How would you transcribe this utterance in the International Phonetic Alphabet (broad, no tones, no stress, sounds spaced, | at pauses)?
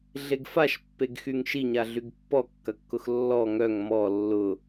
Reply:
ɮ e ɡ f a ʃ pː e ɡ x y ŋ ʃ i ɲ a ɮ y ɡ pː ɔ kː ɐ kː ʊ x lː ɔ ŋ œ ŋ m ɔ lː ʊ